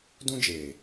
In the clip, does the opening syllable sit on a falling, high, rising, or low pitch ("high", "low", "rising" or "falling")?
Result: high